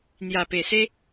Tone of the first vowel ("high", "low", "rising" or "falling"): low